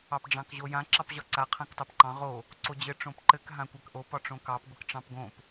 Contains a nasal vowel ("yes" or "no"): yes